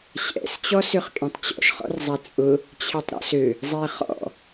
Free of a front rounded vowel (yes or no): no